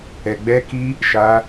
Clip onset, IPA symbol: ɛ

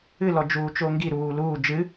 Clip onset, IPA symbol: ɨ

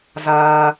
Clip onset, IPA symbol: z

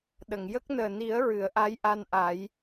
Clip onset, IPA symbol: ɗ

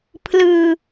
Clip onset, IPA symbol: pʰ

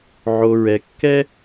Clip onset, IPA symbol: ʕ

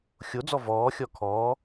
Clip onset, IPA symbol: xʲ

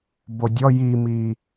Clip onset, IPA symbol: b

